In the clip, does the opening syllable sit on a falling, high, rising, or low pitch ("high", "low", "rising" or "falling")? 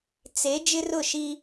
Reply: rising